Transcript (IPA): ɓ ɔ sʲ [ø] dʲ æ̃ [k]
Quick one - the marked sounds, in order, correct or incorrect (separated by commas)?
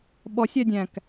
incorrect, correct